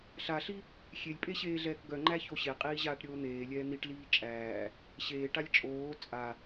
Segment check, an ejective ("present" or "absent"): present